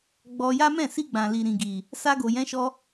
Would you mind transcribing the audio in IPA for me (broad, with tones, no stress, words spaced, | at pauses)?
ɡ͡bɔ˧ja˦ mɛ̃˦˨si˧ɡ͡bã˨li˨ ɾĩ˨ɡi˨ | sa˧ɡo˨jɛ̃˨˦ʃɔ˧